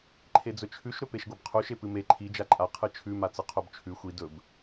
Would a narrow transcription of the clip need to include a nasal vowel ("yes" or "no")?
no